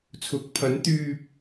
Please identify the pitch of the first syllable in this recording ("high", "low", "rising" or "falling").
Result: rising